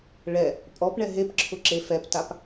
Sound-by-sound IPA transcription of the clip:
ɭ ɛ | pʼ ɔ p ɳ ɛ ɦ e p ǁʰ ʊ ǁ e f ɛ p t a p

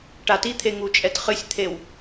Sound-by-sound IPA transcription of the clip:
ʈ a t i t̪ʰ e ŋ u t͡ʃʼ ɛ t χ ɨ sʲ t̪ʰ e w

